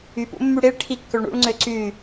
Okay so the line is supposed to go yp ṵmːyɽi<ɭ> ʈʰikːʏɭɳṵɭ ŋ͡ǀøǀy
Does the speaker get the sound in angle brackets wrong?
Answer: no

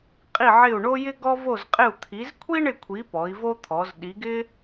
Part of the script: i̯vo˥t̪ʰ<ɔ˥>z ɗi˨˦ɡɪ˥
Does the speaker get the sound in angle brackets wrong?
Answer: yes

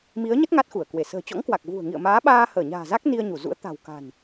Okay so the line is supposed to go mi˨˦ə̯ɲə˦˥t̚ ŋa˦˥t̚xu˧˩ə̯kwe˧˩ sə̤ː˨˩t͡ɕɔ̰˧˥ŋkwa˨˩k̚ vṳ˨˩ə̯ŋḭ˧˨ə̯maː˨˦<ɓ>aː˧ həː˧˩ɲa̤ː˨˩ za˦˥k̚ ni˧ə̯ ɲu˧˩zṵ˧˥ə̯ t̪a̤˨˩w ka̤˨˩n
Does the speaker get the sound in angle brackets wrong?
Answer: no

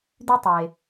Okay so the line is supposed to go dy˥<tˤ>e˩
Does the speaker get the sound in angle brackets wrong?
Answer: no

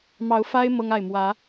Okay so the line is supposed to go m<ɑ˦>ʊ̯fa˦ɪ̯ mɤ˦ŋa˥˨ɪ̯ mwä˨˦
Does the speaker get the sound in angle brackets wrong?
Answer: yes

